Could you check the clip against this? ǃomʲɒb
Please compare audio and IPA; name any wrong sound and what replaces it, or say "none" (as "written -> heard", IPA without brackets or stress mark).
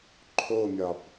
ǃ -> ǃʰ